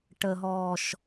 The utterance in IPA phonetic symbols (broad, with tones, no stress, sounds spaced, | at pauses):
ʈ ə˨ ɦ ɔː˨ ʃ